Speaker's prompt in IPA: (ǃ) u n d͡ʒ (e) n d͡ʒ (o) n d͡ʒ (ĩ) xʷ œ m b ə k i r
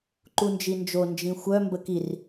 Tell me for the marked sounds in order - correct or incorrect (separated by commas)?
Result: correct, incorrect, correct, correct